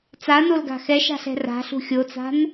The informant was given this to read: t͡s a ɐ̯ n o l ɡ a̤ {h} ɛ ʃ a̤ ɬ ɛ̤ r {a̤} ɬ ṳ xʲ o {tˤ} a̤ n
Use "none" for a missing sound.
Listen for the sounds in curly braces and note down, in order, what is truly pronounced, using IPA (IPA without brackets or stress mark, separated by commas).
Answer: x, a̤, t͡s